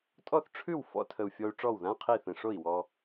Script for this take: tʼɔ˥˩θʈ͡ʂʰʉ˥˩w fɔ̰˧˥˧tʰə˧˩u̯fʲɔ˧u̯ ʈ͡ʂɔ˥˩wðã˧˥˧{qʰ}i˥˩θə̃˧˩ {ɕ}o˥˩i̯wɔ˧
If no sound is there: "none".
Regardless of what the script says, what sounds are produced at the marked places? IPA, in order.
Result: qʰ, ʂ

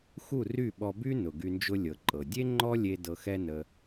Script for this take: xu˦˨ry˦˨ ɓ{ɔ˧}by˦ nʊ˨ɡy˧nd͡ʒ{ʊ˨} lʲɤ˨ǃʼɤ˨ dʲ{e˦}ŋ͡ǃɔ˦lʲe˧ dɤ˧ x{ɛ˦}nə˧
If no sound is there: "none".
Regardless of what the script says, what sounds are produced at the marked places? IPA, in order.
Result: ɔ˧, ʊ˦, e˦, ɛ˦

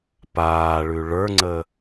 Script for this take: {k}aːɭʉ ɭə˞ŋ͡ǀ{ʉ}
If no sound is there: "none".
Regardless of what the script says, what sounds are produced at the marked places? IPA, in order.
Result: p, ə

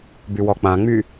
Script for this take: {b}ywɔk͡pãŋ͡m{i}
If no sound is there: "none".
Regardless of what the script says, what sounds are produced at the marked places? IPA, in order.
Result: b, y

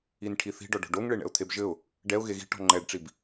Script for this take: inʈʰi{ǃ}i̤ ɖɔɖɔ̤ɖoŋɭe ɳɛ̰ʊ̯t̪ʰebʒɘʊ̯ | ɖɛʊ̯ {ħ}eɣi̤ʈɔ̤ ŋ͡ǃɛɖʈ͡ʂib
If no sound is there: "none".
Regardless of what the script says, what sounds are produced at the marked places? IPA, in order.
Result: θ, ɣ

